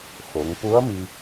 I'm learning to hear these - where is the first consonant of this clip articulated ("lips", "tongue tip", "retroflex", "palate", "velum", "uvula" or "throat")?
velum